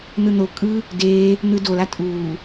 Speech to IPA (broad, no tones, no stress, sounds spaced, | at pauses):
n̪ ɯ n̪ o kʼ ɯ | d eː | n̪ ɯ d o l a tʼ uː